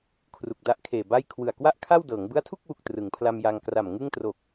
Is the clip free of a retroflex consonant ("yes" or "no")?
yes